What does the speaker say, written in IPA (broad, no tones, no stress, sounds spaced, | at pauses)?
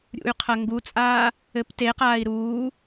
ɾʲ ṵ y̯ qʰ ɐ ŋ ɡ u t͡sʼ aː | ɘ p t e q aː i̯ ɾ uː